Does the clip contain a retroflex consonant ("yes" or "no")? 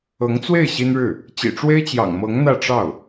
yes